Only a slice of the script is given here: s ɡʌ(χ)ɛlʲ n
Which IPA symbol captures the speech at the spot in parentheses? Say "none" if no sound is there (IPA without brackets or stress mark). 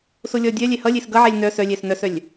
ʕ